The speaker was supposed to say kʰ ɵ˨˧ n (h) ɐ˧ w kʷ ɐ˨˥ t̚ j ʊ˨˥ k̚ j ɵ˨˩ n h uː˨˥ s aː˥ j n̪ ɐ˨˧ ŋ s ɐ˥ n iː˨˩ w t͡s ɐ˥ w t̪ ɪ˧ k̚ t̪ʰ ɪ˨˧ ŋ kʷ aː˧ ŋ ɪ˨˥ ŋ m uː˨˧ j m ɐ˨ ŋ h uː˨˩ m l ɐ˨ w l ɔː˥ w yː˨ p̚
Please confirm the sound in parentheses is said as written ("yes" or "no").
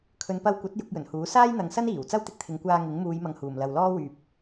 no